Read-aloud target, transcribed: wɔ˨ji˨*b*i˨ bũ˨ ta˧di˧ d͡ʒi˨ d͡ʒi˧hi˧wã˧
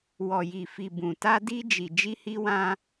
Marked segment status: incorrect: f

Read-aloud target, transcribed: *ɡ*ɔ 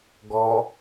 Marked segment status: correct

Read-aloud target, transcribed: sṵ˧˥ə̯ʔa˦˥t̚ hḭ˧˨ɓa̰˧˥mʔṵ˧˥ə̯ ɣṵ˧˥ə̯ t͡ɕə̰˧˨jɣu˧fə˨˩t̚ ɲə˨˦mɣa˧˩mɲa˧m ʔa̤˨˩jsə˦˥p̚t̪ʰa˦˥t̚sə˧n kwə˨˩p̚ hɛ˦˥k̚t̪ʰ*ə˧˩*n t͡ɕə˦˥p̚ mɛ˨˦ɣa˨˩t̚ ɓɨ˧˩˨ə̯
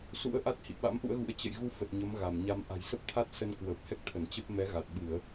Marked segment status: correct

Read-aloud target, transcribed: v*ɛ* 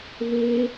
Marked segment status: incorrect: e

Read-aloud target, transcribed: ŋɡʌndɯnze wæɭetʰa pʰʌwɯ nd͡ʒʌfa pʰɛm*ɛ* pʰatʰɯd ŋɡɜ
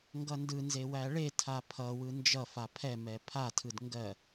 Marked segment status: correct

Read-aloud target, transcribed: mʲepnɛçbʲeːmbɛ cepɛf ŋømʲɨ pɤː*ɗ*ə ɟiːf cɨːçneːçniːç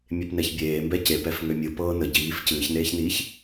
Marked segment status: incorrect: n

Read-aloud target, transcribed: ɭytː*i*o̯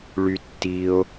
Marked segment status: correct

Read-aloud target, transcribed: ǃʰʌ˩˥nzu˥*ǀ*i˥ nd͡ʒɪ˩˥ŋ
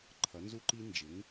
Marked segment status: incorrect: ǃ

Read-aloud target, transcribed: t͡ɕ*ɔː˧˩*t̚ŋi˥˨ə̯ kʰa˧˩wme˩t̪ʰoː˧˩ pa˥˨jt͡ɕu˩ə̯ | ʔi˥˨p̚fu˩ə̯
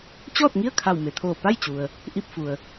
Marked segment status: incorrect: ɔː˥˨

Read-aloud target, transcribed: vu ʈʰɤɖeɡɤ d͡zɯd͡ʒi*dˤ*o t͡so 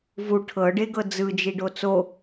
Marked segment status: incorrect: ɖ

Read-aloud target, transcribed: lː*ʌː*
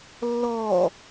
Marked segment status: incorrect: ɔː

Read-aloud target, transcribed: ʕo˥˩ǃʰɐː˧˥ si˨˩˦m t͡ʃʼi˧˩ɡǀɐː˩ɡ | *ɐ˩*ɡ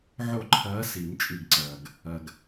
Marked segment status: correct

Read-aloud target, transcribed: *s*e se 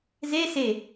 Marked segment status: incorrect: z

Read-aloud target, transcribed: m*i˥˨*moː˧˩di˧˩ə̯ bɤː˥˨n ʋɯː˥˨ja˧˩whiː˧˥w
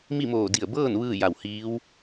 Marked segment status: correct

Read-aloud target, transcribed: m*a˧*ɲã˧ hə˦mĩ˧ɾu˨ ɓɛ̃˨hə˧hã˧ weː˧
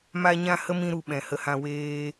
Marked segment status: correct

